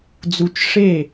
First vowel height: high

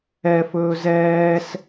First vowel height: mid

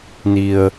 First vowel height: high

